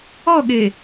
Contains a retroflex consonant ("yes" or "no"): no